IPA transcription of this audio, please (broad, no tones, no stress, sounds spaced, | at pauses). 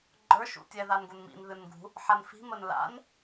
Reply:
ɡ͡ǃ ə˞ ʃ ṵ tʲ ɛ ð a n ɡ u n m ḭ n ð ɨ n ɡ ṳ | ħ a n f i̤ m ə n l a̰ n